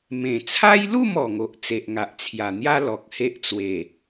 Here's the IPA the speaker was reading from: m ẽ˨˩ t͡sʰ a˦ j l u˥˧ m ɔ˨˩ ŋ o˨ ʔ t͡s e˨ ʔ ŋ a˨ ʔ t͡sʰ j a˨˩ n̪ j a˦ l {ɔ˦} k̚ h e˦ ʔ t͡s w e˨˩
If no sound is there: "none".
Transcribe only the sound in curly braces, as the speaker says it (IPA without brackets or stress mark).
ɔ˨